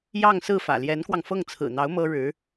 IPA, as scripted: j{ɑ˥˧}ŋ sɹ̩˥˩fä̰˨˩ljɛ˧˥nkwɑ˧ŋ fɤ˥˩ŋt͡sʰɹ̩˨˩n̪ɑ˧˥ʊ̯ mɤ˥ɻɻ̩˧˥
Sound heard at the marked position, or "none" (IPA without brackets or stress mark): ɑ˥˧